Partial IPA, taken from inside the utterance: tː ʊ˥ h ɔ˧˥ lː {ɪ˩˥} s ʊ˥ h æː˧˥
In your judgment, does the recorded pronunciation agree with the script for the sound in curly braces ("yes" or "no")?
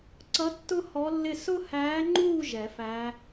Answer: no